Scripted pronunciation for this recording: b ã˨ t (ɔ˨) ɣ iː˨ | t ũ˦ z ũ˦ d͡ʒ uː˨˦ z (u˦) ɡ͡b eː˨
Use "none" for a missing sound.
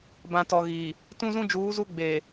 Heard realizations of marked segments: ɔ˨, u˦

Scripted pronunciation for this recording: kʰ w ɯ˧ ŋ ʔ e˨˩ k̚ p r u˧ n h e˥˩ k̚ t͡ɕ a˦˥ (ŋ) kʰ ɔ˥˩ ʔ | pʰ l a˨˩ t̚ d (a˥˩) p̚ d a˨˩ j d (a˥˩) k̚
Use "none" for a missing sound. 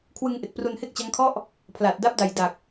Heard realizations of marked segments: ŋ, a˦˥, a˨˩

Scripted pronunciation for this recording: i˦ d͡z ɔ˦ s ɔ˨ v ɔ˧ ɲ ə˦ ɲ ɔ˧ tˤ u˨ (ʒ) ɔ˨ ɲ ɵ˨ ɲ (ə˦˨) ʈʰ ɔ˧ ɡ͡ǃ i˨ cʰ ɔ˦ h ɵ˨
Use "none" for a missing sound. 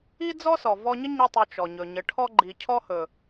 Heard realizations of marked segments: t͡ʃ, ə˨

